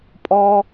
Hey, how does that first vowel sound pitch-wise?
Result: high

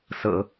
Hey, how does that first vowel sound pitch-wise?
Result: low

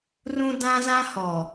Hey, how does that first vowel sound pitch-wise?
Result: high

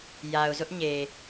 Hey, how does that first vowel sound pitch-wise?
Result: low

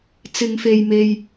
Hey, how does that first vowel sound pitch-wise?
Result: low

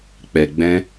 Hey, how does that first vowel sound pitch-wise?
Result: low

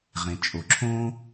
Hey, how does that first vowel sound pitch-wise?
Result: low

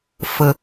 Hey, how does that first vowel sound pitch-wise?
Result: low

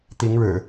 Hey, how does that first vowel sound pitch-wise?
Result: rising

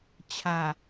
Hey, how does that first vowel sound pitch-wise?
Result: low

